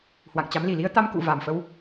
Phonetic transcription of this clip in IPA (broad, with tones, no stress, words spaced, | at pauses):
hwa̰˧˨ŋt͡ɕa˨˦m li˧˩li˧ə̯t̪a˧m kṵ˧˨va˨˩mfə˧w